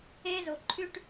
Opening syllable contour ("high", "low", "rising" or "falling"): high